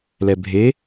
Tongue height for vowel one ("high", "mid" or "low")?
mid